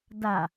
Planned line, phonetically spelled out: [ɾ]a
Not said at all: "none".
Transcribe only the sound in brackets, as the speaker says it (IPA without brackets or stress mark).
d